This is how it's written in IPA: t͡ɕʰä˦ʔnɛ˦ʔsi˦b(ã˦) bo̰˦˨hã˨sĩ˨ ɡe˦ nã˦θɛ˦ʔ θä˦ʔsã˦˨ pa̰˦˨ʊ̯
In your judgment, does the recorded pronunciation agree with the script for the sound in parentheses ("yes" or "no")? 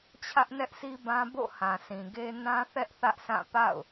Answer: yes